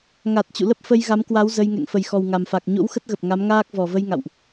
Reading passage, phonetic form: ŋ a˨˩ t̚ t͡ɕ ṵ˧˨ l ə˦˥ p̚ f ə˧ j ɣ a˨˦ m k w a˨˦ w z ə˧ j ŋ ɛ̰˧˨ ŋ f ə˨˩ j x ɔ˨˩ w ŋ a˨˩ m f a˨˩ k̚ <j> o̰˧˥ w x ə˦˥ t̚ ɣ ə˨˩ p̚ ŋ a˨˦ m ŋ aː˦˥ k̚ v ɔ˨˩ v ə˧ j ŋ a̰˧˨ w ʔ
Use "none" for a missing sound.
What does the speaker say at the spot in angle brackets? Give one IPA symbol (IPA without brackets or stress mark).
ɲ